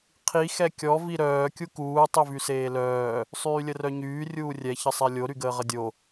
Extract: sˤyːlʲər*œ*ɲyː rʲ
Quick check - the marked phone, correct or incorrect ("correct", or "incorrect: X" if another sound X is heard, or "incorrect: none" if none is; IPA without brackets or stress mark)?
correct